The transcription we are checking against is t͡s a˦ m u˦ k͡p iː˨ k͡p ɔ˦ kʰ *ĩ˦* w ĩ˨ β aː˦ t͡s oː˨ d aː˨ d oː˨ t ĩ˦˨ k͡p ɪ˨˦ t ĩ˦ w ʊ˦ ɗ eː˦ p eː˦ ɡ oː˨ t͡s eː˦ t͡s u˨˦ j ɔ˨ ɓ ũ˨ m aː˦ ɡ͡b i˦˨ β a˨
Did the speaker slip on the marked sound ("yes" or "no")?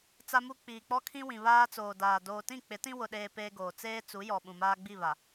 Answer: no